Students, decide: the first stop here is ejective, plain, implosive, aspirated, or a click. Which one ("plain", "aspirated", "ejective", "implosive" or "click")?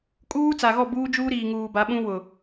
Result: ejective